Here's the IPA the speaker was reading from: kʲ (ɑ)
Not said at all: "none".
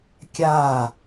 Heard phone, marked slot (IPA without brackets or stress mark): a